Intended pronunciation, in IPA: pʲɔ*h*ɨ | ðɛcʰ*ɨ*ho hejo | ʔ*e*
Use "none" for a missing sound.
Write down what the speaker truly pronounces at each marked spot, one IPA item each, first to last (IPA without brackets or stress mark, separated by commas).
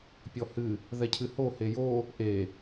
h, ɨ, e